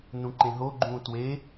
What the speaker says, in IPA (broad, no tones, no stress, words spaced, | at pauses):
nũǃẽɦoɡ͡ǃũː twe